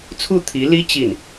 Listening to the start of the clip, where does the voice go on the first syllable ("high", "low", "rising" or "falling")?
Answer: falling